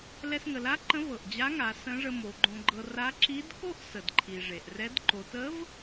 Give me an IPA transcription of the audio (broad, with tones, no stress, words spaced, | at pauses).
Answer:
lɛ˧sŋə˩˧la˥ǃə̃˧˥ vɤ˩ʔd͡ʑa˧˥ŋa˩˧ sə̃˧˥ʐə˧ mo˩˧ɡ͡ǃõ˧ɡ͡ǃɤ˧ ra˧˥ ǁi˧˥dko˥ʔ sə˩dǃʰi˩ ʐe˩ʔrɛ˧˥d ǃo˩˧tə˧˥v